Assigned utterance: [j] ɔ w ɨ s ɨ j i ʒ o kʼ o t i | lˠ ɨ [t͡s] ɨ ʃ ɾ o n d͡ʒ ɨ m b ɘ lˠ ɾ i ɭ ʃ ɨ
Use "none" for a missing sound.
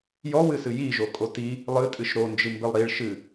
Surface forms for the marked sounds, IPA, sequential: j, tʼ

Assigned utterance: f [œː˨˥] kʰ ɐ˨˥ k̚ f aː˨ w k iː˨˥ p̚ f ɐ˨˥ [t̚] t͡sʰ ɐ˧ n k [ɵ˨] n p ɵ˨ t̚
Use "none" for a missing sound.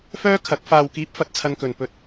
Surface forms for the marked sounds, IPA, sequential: œː˥, t̚, ɵ˨

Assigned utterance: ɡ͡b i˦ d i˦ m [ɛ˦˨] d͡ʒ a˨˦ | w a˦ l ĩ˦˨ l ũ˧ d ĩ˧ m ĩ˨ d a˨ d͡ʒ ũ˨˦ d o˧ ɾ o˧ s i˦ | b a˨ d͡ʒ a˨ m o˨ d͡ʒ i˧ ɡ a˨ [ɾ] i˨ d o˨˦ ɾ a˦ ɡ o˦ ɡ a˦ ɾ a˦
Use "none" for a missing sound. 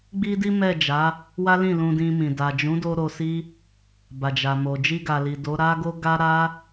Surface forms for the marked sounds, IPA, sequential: ɛ˦˨, l

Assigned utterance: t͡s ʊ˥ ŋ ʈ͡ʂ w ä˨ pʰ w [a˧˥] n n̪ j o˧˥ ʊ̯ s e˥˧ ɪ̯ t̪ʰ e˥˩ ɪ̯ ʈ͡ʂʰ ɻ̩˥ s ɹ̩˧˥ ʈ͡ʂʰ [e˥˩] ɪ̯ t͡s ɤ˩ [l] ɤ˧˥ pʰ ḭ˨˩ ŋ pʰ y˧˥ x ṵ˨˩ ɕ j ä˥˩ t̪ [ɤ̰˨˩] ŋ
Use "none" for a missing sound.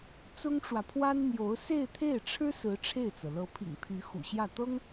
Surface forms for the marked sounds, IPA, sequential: a˥, e˥˩, l, ɤ˥

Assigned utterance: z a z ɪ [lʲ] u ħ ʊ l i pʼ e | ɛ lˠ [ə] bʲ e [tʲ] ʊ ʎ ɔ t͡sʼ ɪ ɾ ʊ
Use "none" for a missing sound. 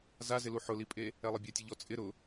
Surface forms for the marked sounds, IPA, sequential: l, ɪ, tʲ

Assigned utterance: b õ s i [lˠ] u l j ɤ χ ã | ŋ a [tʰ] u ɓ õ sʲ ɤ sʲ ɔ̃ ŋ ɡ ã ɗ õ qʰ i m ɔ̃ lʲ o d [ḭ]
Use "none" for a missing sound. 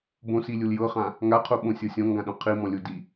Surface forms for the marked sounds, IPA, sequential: lʲ, qʰ, i

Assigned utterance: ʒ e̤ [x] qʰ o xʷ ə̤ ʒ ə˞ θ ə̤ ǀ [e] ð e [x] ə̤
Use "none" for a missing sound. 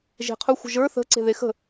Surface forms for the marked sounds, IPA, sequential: none, e̤, x

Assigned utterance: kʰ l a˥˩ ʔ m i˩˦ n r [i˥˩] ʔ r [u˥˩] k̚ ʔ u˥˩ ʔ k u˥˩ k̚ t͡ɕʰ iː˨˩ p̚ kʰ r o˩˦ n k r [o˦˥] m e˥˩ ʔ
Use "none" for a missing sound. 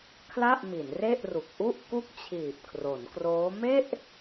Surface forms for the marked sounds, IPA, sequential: e˥˩, u˨˩, oː˦˥

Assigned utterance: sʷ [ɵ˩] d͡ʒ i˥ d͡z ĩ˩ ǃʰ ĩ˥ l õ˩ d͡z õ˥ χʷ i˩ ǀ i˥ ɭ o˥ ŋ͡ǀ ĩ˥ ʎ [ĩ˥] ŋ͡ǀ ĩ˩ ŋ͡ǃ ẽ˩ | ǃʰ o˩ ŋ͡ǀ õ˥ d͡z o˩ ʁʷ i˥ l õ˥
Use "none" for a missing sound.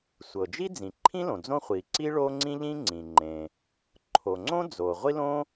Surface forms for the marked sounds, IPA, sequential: ɤ˩, ĩ˥

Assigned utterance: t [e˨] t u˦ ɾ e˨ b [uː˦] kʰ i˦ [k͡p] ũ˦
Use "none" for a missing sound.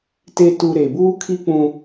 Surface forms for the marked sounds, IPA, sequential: e˦, uː˦, k͡p

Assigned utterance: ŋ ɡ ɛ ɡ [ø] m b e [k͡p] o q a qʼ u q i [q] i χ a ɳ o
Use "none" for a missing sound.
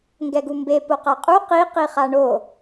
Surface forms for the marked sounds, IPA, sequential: u, p, q

